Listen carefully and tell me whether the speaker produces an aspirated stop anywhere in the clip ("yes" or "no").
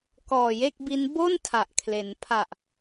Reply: yes